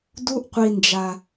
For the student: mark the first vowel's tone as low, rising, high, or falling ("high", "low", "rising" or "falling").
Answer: high